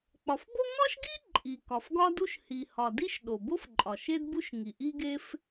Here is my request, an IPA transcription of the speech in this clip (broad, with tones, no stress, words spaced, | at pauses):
k͡pɒ˩fbo˥ ŋɒ˥ʃɡi˥ ǃʼi˩kɒ˩fɡɒ˥du˥ʃ hi˩hɒ˩di˥ʃ ɗo˩bo˥fǃʼɒ˩ ʃe˥dbu˥ʃŋi˩ʔi˥ ɡe˥f